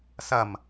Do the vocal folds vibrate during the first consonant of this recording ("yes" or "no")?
no